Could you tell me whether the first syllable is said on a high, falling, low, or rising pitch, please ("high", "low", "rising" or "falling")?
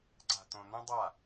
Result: low